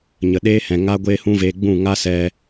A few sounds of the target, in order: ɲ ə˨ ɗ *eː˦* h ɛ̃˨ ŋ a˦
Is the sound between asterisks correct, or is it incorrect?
correct